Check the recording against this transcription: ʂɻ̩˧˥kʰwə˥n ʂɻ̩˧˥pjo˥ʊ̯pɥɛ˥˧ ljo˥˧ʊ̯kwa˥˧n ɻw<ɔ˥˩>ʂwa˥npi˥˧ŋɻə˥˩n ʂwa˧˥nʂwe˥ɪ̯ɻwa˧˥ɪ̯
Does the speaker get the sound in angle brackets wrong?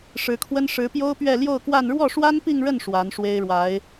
no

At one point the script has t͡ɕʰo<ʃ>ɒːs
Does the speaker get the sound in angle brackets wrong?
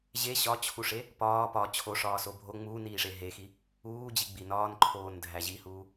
yes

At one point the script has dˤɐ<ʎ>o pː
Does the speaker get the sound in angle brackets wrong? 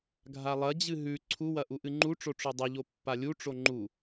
no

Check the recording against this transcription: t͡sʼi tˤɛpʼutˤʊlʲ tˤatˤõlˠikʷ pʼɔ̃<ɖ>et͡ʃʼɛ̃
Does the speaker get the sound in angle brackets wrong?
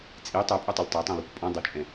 yes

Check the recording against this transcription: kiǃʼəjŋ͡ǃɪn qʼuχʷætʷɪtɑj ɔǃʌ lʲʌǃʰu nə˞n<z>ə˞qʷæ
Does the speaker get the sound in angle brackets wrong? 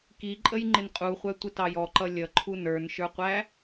yes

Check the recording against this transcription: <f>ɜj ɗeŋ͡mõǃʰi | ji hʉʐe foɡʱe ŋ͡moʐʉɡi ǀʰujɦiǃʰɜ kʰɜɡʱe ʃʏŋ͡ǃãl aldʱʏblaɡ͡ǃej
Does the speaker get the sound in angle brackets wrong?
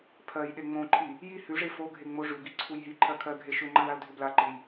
yes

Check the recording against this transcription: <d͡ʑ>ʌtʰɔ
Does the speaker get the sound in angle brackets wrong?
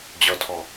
no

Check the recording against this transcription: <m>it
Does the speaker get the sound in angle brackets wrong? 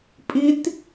yes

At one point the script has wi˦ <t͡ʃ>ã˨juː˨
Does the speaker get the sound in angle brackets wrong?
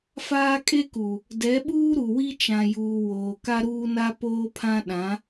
no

